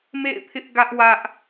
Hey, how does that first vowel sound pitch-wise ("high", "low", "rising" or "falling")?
falling